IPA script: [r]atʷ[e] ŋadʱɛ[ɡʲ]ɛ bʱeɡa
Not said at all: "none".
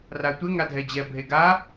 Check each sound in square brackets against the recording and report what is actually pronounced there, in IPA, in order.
r, e, d͡ʑ

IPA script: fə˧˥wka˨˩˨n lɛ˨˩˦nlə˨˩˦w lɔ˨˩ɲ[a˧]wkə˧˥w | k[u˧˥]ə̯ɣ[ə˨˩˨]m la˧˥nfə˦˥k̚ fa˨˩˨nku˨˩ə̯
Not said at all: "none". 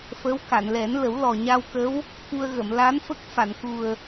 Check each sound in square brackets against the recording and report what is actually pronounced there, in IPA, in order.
a˧, u˧, ə˨˩˨

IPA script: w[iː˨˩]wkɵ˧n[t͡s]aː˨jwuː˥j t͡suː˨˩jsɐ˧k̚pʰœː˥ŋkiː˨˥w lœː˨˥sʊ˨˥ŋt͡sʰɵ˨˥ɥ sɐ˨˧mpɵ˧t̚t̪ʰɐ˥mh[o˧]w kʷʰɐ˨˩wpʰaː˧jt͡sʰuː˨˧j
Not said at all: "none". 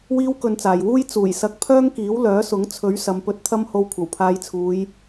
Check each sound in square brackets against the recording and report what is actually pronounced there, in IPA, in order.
iː˥, t͡s, o˧

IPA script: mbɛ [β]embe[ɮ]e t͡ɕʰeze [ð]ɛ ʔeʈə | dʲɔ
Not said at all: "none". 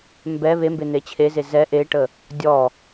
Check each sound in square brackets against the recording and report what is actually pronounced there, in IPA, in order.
β, n̪, z

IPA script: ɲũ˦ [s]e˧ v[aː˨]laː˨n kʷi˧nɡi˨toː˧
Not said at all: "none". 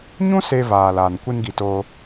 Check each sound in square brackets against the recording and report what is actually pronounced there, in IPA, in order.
s, aː˨

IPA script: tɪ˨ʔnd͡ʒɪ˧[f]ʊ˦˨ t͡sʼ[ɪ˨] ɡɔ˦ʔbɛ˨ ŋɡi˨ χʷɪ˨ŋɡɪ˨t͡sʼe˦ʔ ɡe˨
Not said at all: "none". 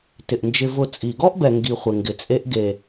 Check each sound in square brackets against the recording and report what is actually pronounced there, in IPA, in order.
v, i˨

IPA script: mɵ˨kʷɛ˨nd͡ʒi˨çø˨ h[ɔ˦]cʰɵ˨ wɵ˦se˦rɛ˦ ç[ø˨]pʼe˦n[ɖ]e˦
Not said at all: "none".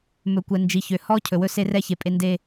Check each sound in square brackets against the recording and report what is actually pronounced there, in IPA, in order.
ɔ˦, e˨, d

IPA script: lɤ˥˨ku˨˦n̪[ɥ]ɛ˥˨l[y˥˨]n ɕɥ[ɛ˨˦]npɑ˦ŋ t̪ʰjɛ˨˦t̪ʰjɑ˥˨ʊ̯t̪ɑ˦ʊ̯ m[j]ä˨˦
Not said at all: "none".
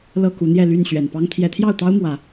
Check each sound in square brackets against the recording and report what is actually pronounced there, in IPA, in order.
j, y˥˨, ɛ˨˩, w

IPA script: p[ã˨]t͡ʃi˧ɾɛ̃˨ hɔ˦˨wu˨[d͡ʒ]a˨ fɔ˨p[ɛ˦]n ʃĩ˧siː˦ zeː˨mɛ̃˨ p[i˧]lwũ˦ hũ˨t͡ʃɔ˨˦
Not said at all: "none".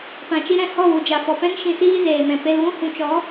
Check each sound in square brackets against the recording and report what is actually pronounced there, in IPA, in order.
ã˨, d͡ʒ, ɛ̃˦, e˧

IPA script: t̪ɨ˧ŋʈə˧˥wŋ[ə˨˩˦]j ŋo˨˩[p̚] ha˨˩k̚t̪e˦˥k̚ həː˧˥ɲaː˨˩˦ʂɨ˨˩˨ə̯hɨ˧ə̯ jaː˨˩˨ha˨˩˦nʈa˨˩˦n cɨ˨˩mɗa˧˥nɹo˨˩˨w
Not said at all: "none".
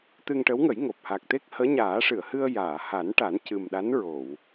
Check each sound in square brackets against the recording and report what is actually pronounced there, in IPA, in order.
ə˨˩˦, p̚

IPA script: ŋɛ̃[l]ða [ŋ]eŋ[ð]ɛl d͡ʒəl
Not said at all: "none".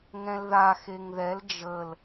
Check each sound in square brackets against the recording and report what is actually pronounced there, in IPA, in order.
l, x, ð

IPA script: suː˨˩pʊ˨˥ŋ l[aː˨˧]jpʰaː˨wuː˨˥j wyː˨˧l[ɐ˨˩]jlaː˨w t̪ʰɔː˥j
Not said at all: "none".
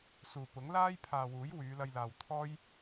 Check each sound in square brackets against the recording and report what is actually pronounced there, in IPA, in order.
aː˥, ɐ˧

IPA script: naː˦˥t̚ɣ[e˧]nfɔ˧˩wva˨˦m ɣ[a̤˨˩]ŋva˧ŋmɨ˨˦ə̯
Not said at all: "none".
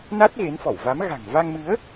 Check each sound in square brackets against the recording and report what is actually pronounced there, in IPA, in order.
e˨˦, a̤˨˩

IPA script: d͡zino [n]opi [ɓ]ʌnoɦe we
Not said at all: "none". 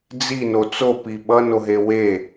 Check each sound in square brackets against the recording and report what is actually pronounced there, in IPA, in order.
t͡s, ɓ

